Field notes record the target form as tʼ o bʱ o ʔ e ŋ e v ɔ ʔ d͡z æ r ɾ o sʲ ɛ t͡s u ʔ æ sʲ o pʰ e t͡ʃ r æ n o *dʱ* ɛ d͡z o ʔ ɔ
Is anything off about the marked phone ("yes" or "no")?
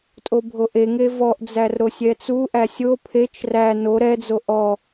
yes